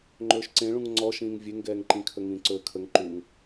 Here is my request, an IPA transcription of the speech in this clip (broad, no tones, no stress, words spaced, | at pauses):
ŋ͡ǃɵːʃǀẽɭũŋ ŋ͡ǀɔʃĩːŋ vʲeŋɡɛːŋǃĩkʰə ŋĩːǀɵːkʰəŋ ǃuŋ